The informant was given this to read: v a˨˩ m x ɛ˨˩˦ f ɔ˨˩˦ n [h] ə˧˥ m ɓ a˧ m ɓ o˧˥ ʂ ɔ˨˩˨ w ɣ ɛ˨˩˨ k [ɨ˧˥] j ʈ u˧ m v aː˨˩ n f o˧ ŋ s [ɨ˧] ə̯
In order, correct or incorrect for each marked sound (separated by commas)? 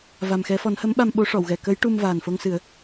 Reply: correct, incorrect, incorrect